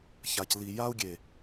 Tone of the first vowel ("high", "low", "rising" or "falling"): low